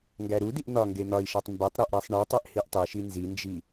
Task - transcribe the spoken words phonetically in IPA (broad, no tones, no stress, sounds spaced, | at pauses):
ŋ ɡ æ ɾ u d i ʔ n̪ ɒ ŋ ɡ e n̪ ɒ i̯ ʃ æ tˤ m b e tˤ ɾ o ʔ ɾ æ sˤ ɳ i tˤ e ʔ h i ʔ tˤ i ʃ i n z i n d͡ʒ i